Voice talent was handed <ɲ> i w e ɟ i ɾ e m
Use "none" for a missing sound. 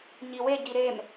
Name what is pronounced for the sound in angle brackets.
ɲ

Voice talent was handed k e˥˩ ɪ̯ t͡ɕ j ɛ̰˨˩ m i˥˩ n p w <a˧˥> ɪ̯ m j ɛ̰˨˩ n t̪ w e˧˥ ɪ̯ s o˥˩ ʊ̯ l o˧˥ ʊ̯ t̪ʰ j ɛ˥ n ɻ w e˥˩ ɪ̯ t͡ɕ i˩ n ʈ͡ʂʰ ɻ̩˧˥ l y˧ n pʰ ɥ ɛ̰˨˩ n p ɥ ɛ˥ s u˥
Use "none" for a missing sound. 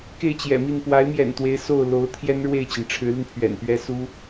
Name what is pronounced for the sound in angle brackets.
a˧˥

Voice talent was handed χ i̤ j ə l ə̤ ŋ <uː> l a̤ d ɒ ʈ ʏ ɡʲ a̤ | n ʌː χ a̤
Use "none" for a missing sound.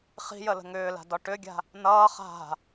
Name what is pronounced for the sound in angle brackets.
ʏː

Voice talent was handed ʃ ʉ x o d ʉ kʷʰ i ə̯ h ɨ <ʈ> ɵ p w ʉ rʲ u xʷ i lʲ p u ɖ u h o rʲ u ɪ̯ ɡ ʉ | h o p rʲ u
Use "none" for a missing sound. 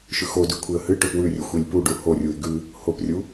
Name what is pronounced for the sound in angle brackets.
ʈ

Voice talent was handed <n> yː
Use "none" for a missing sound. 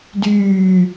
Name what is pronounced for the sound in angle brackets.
d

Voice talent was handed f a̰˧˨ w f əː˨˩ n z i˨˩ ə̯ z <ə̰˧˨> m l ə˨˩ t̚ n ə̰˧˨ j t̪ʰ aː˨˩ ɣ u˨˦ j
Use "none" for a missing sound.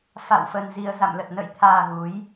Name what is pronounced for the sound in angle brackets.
a̰˧˨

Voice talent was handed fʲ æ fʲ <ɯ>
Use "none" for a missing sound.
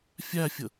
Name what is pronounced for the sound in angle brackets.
ə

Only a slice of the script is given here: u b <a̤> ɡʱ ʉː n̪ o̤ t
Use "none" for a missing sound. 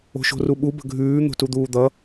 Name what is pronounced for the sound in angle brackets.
ə̤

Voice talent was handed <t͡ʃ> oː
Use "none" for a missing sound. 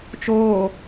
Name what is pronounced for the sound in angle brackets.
t͡ʃ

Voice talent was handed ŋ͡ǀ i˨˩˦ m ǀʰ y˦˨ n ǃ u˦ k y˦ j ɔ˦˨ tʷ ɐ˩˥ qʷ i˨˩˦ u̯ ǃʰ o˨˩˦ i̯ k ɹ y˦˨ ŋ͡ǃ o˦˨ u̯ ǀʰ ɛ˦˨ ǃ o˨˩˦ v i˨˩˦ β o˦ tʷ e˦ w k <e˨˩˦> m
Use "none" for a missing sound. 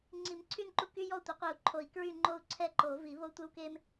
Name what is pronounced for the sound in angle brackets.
e˦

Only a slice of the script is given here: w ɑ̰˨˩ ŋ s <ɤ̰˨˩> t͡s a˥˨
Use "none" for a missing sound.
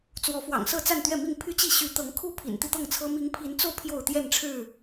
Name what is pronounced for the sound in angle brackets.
ɤ˥˨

